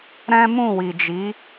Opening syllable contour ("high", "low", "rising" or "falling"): high